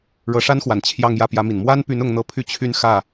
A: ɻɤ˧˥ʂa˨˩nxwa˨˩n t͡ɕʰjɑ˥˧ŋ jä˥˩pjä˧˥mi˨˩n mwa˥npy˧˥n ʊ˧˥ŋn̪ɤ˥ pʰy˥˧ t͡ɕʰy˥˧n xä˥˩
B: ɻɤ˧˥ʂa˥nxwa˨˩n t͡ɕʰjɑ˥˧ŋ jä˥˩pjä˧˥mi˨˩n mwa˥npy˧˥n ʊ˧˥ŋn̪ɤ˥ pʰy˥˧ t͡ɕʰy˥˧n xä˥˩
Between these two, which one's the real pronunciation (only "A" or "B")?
B